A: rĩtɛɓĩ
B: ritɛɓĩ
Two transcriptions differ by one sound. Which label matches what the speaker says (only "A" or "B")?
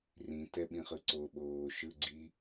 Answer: A